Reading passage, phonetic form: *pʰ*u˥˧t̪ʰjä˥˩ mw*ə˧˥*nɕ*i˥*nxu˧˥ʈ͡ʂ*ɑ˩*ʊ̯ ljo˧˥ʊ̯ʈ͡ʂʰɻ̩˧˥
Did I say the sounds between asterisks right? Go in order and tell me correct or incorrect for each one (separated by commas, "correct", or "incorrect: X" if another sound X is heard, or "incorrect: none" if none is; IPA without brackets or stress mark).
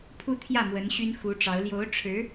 correct, correct, incorrect: y˥, incorrect: ɑ˧˥